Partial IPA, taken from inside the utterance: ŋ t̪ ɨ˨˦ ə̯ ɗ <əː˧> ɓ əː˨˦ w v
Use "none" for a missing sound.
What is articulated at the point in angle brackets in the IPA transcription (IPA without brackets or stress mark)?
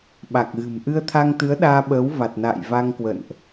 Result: aː˧